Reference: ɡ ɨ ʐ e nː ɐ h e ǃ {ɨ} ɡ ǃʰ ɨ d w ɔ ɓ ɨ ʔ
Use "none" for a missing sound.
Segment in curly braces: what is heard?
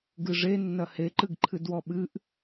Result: ɨ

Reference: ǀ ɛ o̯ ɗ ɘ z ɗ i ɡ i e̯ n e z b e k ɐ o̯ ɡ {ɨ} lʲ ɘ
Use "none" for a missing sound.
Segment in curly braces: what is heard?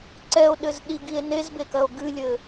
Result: ɨ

